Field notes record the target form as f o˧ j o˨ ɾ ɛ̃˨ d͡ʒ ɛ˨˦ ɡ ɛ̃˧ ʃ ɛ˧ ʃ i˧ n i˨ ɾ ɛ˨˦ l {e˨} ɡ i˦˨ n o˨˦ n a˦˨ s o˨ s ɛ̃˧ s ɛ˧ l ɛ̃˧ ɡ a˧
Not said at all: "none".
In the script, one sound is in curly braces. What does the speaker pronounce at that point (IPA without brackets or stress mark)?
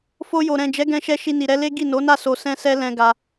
e˦